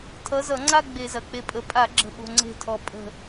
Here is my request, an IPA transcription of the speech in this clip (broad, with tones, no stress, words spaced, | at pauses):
tʰʌ˨˥ zʌ˧˩˧ŋ͡ǀa˥˧ ɡ͡be˧˩˧zɐ˩k͡pe˧˩pʼə˩˧˩ pʼa˧˩˧ɡ͡ǁə̤˧˩ɓo̤˩˧˩ ŋ͡ǀe̤˧˩tʰɔ˩ pʼə̤˧˩